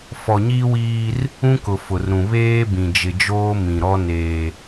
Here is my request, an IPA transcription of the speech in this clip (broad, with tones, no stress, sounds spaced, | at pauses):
f ɔ˨ ɲ iː˦ w iː˦ r | ũ˦ k ʊ˨ f ʊ˨ r ɾ ũ˨ β eː˦ b ĩ˨ d͡ʒ ɪ˨ d͡ʒ oː˦ m ĩ˨ ɾ ɔ˦ n eː˦